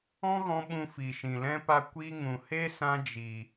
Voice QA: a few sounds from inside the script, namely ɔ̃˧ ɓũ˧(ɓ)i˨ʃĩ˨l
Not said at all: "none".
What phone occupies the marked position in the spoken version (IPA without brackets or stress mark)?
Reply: f